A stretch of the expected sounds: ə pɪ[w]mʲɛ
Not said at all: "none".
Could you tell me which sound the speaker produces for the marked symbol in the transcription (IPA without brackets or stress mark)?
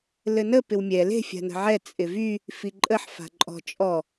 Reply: w